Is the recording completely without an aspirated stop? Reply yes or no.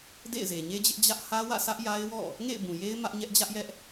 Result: yes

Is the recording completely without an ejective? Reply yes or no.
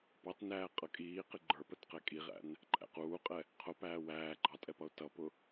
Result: no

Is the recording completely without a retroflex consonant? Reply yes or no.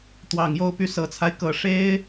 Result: no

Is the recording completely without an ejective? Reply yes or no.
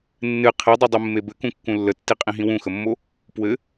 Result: no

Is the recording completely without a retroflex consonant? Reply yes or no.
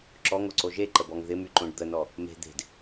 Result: no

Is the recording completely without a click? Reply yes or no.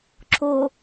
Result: no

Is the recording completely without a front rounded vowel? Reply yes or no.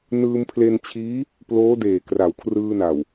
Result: yes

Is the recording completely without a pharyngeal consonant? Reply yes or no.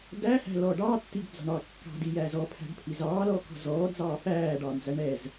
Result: yes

